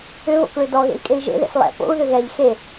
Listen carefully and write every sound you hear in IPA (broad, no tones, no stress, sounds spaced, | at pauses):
ʏ β o̰ k ɭ ø d ɔ ɣ ḛ i̯ kʼ e i̯ ʒ ḛ ð ḛ s lˠ ɛ̰ p o̰ u̯ ð ʏ ɣ ɛ ʎ x e